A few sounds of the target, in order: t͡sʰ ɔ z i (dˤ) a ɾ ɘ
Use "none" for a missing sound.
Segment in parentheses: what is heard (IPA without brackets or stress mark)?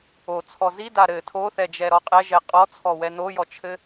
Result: d